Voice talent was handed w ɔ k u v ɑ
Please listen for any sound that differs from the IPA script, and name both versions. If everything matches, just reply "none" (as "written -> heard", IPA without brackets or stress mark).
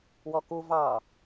none